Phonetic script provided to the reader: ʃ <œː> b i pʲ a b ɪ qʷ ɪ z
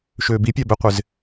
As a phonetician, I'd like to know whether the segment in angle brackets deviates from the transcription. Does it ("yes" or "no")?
yes